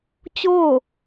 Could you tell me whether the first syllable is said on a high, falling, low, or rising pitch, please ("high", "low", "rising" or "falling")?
falling